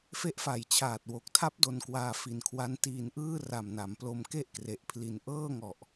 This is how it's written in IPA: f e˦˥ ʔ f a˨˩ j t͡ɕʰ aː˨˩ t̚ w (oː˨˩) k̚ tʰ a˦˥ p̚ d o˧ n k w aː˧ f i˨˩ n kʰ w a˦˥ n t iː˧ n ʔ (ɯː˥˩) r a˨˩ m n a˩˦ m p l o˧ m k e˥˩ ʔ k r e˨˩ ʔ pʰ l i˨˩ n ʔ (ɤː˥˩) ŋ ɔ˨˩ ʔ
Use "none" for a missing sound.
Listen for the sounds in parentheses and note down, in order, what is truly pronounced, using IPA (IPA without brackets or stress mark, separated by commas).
o˨˩, ɯː˥˩, ɤː˥˩